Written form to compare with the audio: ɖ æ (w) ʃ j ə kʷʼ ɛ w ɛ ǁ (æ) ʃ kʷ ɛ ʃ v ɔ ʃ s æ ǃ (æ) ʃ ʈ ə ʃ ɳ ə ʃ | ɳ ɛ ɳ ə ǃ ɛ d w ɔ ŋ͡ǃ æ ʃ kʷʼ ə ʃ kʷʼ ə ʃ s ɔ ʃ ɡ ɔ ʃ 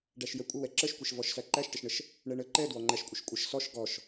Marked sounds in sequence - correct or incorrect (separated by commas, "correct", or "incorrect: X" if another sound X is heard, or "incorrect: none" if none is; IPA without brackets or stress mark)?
incorrect: none, incorrect: ə, correct